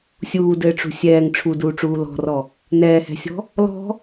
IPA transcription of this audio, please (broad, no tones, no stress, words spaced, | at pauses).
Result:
sʲuːdɘːʈ͡ʂṳ sʲɛːŋ ʈ͡ʂʰuduːʈ͡ʂuː lɔ̤rɔ | nɛːhɛ̤sʲɔ̤ | lɔ̤